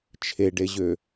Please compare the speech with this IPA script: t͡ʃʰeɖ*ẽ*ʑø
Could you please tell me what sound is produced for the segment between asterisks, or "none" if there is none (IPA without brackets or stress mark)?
e